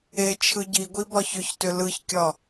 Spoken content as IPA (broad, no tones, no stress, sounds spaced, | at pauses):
e t͡ʃʰ ɯ ɟ i ɡʷ i b ɒ ç ʏ ç t ʏ l ɯ ç kʲ ɒ